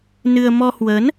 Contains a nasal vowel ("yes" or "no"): no